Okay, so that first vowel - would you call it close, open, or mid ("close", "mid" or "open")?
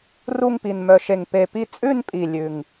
close